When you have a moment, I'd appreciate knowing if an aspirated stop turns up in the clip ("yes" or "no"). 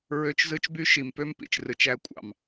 no